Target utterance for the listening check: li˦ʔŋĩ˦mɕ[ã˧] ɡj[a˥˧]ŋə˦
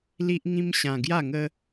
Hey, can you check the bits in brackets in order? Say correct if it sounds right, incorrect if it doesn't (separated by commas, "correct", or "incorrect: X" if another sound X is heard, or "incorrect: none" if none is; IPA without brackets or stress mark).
correct, correct